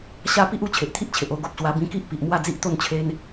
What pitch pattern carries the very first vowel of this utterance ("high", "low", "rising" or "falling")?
high